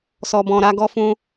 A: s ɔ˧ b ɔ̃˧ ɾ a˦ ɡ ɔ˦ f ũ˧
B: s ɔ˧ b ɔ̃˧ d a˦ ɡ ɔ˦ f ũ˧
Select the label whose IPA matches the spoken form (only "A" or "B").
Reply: A